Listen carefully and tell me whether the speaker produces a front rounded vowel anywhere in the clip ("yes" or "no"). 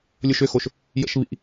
yes